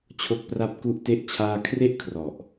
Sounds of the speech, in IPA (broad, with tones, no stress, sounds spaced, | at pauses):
t͡ɕʰ o˦˥ k̚ p r a˥˩ p̚ k u˦˥ ʔ t e˦˥ ʔ t͡ɕʰ aː˥˩ kʰ r e˥˩ ʔ kʰ r ɔ˨˩ ʔ